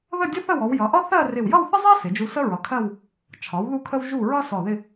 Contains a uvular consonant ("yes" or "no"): no